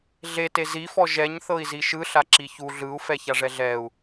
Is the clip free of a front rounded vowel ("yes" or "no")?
yes